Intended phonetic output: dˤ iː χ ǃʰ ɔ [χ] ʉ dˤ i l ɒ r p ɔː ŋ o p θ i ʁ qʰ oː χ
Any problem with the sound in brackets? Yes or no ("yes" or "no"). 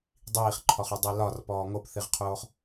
no